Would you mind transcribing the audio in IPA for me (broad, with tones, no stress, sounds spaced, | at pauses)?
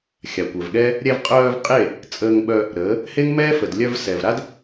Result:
xʲ a˨ kʷ œ˨ v ɠ ɛ˦ | ɾʲ ɛ˧ v qʼ œː˧ v qʼ e˦˨ | t͡sʼ əː˧ ŋ ɓ œ˧ | ɾ əː˨˦ | h e˦ ŋ m ɛː˦ f ə˨ d lʲ œ˧ v s ɛ˨ v ɾ a˦ d